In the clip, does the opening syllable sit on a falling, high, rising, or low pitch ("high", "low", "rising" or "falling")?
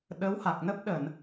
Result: rising